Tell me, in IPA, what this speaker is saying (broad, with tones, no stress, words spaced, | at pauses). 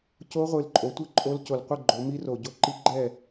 co˦˥ʁʷɨ˨˩lǃʼo˩˧ tʷɨ˥˨ǃʼo˦˥l co˨˩lqʷɨ˥˨ɡ͡ǃo˩˧mi˦˥ ro˨˩ ɟo˦˥ǃi˦˥ɡ͡ǃɛ˥˨